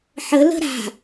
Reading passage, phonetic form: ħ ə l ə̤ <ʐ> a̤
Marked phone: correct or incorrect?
incorrect: ɾ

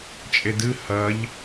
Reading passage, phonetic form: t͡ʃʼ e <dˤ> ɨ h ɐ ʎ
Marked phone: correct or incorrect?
incorrect: d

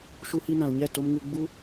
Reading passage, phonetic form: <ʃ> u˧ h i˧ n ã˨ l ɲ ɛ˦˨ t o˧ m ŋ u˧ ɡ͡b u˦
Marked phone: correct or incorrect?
correct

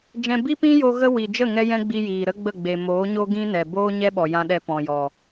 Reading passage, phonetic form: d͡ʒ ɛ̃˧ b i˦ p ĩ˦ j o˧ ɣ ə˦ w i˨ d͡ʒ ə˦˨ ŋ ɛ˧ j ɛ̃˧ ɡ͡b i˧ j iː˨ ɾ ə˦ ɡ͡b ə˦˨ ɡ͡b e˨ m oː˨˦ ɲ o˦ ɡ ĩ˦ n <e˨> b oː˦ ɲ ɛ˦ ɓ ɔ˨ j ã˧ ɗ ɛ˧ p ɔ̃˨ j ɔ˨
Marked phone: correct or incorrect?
incorrect: ɛ˨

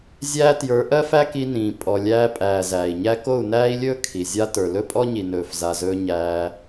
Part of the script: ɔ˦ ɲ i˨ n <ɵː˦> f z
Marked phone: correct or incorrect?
incorrect: ɵː˨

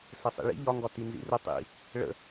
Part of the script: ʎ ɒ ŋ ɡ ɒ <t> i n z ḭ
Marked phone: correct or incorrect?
correct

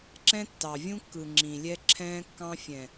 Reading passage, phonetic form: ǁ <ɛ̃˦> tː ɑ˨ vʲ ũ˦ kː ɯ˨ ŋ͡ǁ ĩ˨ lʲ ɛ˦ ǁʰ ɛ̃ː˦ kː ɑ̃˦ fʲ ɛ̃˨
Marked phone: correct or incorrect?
correct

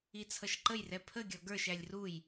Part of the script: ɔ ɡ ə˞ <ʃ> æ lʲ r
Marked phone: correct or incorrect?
correct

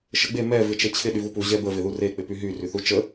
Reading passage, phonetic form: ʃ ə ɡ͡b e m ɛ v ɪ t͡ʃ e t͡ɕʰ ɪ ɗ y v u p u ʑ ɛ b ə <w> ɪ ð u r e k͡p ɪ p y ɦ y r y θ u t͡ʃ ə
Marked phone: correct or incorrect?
incorrect: v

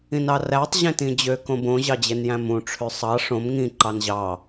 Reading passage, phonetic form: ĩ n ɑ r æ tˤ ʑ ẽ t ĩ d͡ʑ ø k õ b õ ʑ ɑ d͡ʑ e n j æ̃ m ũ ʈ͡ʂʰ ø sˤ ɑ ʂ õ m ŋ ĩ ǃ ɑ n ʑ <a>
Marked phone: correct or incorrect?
incorrect: ɑ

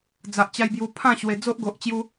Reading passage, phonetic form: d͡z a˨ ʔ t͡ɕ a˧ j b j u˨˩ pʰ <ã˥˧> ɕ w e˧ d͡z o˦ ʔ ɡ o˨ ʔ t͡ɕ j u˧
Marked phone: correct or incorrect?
correct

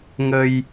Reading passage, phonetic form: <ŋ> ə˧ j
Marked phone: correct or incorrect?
correct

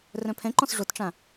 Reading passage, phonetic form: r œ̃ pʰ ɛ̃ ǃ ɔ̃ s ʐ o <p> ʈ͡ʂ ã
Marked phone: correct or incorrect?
incorrect: t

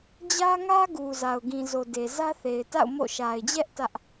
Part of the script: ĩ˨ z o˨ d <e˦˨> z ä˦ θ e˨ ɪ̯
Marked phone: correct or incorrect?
incorrect: e˨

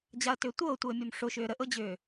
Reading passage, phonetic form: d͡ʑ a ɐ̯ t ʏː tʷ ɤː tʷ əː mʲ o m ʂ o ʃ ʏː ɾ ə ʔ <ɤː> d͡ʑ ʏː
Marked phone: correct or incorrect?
incorrect: ɤ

